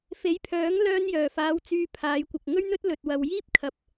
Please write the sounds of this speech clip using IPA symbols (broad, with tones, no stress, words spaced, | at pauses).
fe˨˥jpʰœː˨˥ŋ lœː˧njœː˨˩faː˨˧w t͡syː˧pʰaː˨˧jkʷɐ˨k̚ ŋɵ˥ɥn̪ɵ˥t̚ lɵ˨t̚wɐ˨w jiː˥p̚kʰɐ˨p̚